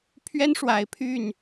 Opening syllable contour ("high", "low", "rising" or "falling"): high